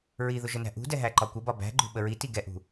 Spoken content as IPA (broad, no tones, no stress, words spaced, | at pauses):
ɹiðʊ ʒənæ̤ʔṳ dɛɦæǃɒkʷə bɒbæ̤ɡ͡ǃṳ ɓəɹiti ɡɛʔṳ